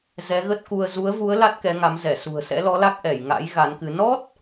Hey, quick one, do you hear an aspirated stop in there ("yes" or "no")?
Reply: no